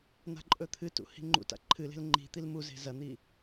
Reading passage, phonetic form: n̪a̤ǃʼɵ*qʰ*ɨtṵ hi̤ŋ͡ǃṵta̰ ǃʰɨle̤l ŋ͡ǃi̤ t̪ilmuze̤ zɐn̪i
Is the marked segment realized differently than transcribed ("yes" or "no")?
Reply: yes